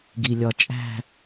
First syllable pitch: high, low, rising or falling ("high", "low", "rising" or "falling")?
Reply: low